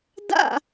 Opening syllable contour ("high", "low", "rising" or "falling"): falling